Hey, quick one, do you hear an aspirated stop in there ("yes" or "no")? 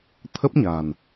yes